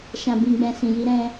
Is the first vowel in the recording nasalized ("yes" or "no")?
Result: yes